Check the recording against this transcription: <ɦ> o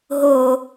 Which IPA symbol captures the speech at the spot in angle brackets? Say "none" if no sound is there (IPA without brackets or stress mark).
ɦ